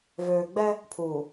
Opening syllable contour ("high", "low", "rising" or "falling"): low